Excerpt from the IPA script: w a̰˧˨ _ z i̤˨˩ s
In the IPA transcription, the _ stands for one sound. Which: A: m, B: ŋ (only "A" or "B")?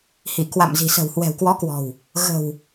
A